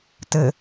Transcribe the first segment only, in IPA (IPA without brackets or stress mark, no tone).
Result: t